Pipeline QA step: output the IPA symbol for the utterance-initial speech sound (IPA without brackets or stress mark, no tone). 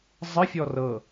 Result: zˤ